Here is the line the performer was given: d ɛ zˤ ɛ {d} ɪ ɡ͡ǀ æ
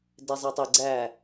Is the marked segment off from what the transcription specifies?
yes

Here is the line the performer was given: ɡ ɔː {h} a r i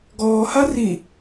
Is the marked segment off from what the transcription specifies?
no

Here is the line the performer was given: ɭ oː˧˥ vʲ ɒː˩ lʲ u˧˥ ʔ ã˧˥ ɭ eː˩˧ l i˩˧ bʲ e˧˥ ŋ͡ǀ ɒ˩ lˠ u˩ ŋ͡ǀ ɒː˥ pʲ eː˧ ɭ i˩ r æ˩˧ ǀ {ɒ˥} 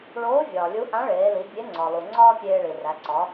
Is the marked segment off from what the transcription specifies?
yes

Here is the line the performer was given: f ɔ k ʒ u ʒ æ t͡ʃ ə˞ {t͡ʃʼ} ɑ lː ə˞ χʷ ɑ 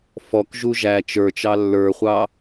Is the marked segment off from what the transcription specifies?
yes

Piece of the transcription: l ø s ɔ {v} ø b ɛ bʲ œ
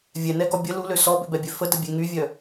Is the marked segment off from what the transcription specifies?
yes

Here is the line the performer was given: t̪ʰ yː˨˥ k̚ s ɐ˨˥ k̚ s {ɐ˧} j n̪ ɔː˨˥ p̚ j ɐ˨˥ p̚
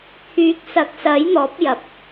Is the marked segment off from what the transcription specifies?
yes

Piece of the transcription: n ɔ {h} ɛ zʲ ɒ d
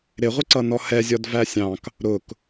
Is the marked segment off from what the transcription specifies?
no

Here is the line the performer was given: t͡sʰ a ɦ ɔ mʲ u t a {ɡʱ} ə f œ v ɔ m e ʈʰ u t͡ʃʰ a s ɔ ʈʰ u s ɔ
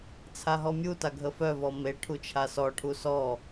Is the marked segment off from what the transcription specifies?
no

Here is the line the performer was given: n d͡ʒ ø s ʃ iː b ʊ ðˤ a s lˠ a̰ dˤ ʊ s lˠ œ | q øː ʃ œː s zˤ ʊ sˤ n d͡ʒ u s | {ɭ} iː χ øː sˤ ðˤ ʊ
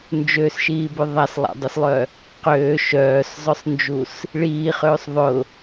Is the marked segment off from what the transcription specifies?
no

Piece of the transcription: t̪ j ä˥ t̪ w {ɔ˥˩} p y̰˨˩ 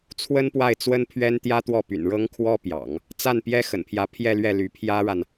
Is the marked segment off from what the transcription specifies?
no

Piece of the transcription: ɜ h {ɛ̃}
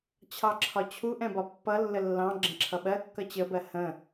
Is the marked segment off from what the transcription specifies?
yes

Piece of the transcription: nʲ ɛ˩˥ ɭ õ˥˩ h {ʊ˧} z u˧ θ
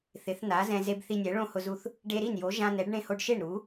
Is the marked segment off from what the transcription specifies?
no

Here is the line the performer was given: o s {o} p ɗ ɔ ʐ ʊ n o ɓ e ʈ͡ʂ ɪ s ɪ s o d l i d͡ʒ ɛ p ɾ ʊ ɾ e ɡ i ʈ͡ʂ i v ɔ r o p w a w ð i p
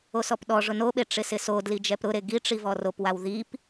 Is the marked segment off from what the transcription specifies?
yes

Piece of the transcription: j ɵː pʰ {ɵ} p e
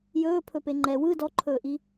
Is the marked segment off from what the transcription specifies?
no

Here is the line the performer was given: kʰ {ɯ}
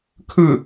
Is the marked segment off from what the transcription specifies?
no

